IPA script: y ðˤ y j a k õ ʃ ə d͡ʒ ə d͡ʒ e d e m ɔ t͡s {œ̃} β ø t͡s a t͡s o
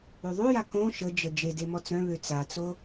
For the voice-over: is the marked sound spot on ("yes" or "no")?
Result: yes